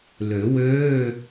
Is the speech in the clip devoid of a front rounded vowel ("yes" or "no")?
no